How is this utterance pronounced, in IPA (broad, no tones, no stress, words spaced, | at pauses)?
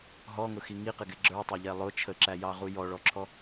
ɦɔŋʊxi ŋiqɪɡɪ ɡ͡ǁə˞tˤə˞ʎɛ lˠʊ t͡ʃʰəǁæjɑʁu jɔɭɔǁʰɔ